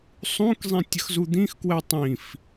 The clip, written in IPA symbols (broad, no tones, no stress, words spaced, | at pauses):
sˤũkzˤĩ tʲəxzud̪ĩxkwɛ tˤĩf